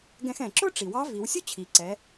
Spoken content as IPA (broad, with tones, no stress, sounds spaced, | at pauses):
ɡ ɛ̃˧ x ɛ̃˩ ǁ ʊ˥ ʈ͡ʂ i˩ w ɑ˧˥ v i˩˧ w sʲ u˥ t͡ɕʰ i˩ ǀ ɛ˩˧